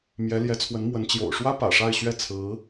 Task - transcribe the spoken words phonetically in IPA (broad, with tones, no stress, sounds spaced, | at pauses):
m j ɛ˧˥ l j ɛ˧˥ t͡sʰ w ə˧˥ n m w ə˧˥ n t͡ɕ j o̰˨˩ ʊ̯ ʂ w ä˥ p ä̰˨˩ ʂ a˥˧ ɪ̯ ɕ ɥ ɛ˥˩ t͡sʰ ɹ̩˧˥